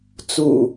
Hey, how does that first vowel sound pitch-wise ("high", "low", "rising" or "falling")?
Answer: low